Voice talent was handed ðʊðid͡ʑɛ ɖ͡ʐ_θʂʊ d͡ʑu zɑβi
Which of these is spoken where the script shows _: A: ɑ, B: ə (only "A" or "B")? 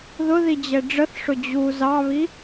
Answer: B